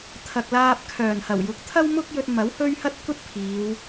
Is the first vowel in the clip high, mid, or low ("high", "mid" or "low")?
low